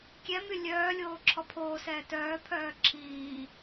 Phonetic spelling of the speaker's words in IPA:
kʲɛ mylʲœːlʲoː ǁʰɔpʰoːsɛː tœːpʰœː ǁʰiː

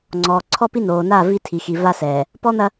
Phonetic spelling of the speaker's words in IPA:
ŋ͡ǀɔː˨ ǀʰɔ˦pi˦ noː˨na˦˨ vi˦tʰi˨xi˨ va˦sɛː˨ | pɔ˦n̪ɐ˦

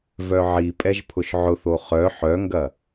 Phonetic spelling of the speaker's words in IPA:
vœʕipʼɛʒ pʰʊʃʕʊθo χœ ħœŋɡɐ

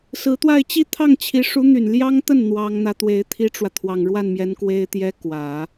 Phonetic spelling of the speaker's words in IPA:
sɹ̩˧˥t̪wa˥˧ɪ̯ t͡ɕi˥˧ t̪ʰɑ˥˩ŋt͡ɕʰi˧˥ ʂu˧˥n̪y˨˩n ljɑ˥ŋt̪ə˥˩n n̪wɑ˥ŋ n̪ä˧˥t̪we˧˥ɪ̯ t̪ʰi˥ʈ͡ʂwä˨ t̪ʰwɑ˨˩ŋɻwa˥˩nmjɛ˧˥n kwe˥ɪ̯t̪jɛ˥ kwä˨˩˦

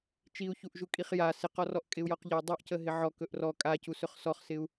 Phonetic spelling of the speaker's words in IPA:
t͡ʃiu̯çuʔʒu kʼiχja sɪqɔrɔʔ kʼɪu̯jɔqʎəi̯ dˤuʔcəɦɪ ʕɔ kɵʔrɔ kʼacu sɵχsɔχsɪu̯

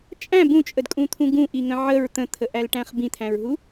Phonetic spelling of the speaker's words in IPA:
t͡ʃʼæ̃ bũt͡ʃʼədkʼũt̪ʰũ ɡũʔiŋə̃ ʕəɹ t̪ə̃t̪ʰəʔælʈæ̃χ bĩt̪ʰæ̃ɹɦu

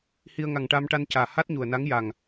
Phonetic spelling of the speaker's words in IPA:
hi˧ə̯ ŋa˨˩ŋʈa˧mʈa˧ncaː˨˩ ha˦˥t̚ɲu˨˩ə̯na˧˥ŋja˨˩ŋ

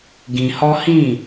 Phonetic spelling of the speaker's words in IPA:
ɡĩ˧hɔ˦ hĩ˦˨

